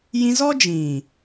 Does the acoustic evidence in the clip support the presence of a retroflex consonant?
no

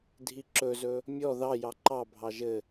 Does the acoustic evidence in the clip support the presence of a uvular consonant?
no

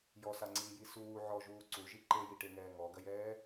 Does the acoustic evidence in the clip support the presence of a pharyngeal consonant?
yes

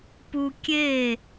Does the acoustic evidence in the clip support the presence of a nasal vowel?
no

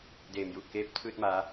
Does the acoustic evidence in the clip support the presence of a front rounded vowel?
no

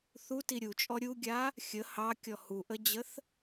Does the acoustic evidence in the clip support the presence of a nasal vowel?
no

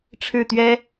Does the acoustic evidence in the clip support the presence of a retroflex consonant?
yes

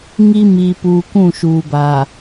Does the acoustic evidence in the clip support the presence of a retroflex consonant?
no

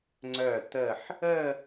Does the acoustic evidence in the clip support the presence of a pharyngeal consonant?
yes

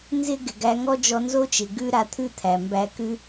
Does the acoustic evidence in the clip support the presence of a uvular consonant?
no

